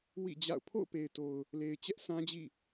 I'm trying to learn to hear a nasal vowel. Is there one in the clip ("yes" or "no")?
yes